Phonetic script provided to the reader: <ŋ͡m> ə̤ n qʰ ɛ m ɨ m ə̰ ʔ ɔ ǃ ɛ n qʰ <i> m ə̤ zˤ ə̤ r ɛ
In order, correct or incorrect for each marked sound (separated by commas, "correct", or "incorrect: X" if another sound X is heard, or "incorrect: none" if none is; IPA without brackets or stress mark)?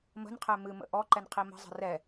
incorrect: m, correct